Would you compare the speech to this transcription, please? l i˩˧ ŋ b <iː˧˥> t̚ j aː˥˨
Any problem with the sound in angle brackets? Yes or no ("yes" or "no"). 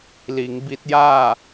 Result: yes